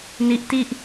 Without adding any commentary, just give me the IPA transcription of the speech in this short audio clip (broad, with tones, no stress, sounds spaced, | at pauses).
n i˦˥ ʔ t i˥˩ ʔ